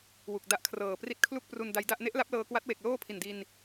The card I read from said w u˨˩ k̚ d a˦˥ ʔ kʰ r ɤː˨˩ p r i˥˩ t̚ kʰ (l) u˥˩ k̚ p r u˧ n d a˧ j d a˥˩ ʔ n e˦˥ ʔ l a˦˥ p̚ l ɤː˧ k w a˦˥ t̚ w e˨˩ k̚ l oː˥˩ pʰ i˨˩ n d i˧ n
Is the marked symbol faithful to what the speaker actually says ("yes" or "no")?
yes